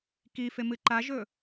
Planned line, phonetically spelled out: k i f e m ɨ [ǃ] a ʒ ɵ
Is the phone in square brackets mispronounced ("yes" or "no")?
no